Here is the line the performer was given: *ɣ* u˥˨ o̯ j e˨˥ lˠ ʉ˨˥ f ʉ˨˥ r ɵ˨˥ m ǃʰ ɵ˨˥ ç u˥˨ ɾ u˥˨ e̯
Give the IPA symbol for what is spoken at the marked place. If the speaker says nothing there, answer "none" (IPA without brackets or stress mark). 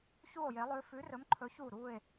ç